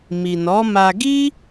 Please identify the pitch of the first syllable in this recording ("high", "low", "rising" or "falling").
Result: low